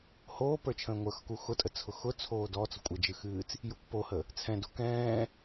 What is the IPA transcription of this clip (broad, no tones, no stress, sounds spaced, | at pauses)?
h oː p ə˞ t͡ʃʰ ə̃ː ŋʷ ə˞ x k u x ʊ tʼ ə t͡sʰ ʊ x ʊ t͡sʰ oː d ɔ t͡s ʊ kʷʼ ə d͡ʒ ɨ x ɨː t͡s | j u kʷ p o h ə | t͡sʰ ɛ̃ d o k ɛ̃ː